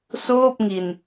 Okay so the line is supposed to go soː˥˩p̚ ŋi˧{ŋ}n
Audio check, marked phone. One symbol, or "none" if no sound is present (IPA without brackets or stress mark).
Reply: none